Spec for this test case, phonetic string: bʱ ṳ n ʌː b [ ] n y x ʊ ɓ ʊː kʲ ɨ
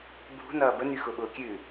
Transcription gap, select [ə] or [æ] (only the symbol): ə